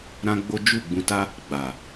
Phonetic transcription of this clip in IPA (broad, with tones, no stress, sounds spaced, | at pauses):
ɾ ã˦ ɡ͡b o˦ d͡ʒ u˦˨ ɡ͡b ũ˧ t a˦ | ɡ͡b a˨